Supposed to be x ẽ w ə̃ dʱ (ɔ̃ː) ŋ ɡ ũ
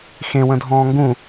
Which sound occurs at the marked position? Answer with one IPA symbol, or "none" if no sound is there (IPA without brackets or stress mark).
ɔ̃ː